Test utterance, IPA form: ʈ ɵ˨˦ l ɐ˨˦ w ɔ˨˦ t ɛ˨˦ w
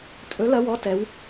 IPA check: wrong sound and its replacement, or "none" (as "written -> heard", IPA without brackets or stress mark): ʈ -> tʼ